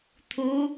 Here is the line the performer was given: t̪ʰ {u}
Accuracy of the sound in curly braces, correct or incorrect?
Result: correct